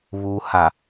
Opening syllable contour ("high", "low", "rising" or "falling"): low